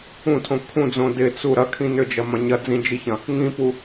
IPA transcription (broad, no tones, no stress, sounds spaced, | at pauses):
ũ tʰ õ kʰ ũ d͡z õ d ɪ t͡s u ɾ ɐ kʰ ĩ n ʏ d͡ʒ ɐ m ɐ̃ ɲ ɐ d͡z ĩ d͡ʒ i ç ɐ̃ | ŋ ĩ p u